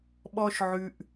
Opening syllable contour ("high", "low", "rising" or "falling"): high